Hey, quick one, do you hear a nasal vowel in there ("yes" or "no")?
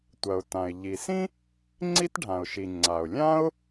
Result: yes